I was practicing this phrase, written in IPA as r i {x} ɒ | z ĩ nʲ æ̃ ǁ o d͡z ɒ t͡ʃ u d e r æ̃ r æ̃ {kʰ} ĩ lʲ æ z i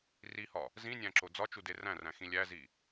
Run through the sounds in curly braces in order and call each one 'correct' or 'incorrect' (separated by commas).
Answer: incorrect, incorrect